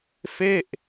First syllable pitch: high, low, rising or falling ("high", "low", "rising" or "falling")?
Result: falling